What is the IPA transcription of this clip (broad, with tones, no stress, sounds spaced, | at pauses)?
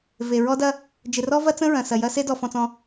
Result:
v e˨ ɹ ɔ˦ d ɐ˦ | d͡ʒ ɪ˨ r ɔ˦ v ɐ˦ t͡s ə̃˦ ɹ ɐ̃˨ s ɐ˨ j ɐ˦ s e˦ d ɔ˨ f ɔ̃˨ t͡s ɔ̃˨